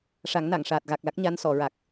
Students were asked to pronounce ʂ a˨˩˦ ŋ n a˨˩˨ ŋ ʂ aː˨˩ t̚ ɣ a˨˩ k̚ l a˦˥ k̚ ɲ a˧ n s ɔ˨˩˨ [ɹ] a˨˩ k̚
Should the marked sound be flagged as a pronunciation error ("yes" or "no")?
no